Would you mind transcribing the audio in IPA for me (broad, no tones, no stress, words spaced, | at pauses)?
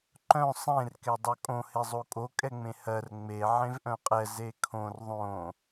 ǃœ̃ sˤẽr kɛdˤœkʼõ hezˤokʼo kʼɛŋ͡mẽhɜr ŋ͡me ʕẽvʔœ̃qʼɛ zekʰõr ðˤõ